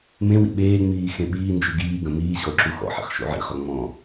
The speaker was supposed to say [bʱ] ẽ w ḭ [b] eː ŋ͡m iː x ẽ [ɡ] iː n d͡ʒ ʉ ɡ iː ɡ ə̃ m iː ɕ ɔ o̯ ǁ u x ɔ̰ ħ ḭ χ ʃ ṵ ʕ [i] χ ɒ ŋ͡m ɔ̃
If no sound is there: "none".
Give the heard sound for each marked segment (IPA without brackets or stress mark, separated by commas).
m, ɓ, ɓ, ḭ